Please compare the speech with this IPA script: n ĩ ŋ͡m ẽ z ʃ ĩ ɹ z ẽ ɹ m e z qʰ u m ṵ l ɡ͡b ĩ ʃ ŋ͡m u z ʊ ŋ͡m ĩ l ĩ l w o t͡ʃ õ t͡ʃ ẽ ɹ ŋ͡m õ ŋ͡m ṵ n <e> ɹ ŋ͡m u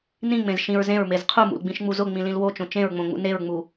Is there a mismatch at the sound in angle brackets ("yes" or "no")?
no